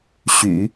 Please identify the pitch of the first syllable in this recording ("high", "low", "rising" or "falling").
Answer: low